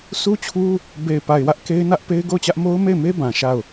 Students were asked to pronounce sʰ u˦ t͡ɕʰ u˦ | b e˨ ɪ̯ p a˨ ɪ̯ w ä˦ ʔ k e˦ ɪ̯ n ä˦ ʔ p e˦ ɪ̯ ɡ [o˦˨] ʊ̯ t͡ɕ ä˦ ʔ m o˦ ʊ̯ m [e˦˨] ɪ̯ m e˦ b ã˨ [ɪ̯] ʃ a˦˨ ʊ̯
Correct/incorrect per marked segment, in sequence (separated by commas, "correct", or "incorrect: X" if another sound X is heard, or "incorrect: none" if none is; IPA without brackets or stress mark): correct, correct, incorrect: none